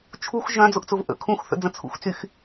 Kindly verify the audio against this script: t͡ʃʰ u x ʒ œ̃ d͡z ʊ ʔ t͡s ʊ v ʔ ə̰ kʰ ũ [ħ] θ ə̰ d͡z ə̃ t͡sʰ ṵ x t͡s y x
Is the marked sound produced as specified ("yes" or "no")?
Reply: no